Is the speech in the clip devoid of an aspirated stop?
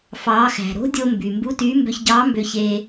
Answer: yes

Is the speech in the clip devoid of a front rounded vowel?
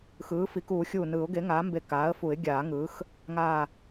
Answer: yes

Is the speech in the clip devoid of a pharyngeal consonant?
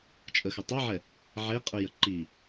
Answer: no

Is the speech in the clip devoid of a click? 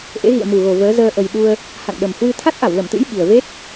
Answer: yes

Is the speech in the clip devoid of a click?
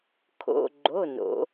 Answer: no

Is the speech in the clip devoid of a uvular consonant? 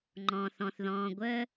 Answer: yes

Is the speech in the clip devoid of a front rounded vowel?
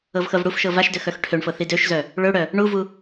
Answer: no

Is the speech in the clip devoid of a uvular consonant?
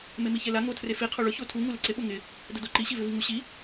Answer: no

